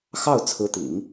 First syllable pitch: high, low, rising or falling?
falling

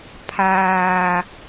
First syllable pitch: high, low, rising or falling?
low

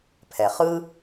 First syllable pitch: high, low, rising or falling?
low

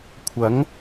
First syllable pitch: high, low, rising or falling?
rising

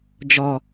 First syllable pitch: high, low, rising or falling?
low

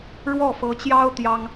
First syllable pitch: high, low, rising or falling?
falling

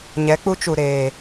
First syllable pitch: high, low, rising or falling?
rising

